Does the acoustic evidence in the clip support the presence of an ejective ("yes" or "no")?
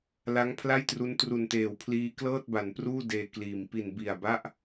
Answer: no